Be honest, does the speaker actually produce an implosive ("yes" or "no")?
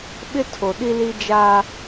yes